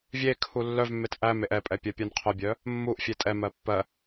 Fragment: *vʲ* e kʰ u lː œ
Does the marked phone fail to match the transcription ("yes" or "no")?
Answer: no